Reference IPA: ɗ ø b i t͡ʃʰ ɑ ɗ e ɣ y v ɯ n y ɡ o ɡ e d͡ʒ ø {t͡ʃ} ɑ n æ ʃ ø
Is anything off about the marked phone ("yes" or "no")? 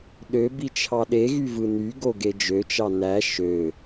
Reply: no